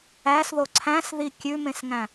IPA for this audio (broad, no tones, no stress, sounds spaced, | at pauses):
æ s ð o ǀʰ æ̃ s ð i kʲ ʉ m ẽ s ŋ æ̃